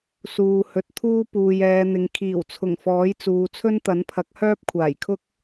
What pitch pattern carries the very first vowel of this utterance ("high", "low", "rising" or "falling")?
low